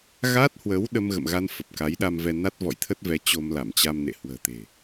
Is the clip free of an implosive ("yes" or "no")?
no